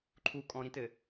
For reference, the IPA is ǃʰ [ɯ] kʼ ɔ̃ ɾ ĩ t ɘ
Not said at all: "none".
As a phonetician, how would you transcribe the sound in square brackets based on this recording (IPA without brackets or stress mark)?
u